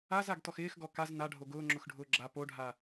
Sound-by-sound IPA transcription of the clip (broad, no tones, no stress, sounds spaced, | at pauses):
a z a ɡ t ɔ x ɪː x ɡ ɔ k a z n a ɖʱ o ɡ ʊː ŋ͡ǁ ʊ x ɖʱ ʊː ɡ͡ǁ a p o ɖʱ a